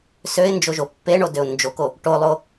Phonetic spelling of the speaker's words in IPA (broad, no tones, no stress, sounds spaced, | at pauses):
s ø ɪ̯ n d͡ʒ o ʒ o pː e ɳ o d ø ʊ̯ n d͡ʒ o k o | ʈ o lˠ o